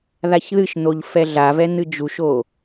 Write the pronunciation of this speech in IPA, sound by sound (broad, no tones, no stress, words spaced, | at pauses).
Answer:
ðaçðɨʃn̪oʎ fɛɮavɛ n̪ɨd͡ʒuʃo